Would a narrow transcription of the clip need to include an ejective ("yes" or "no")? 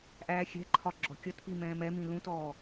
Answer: no